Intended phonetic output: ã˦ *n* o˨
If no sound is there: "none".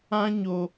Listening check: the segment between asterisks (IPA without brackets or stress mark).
ɲ